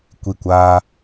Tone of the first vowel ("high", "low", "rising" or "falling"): falling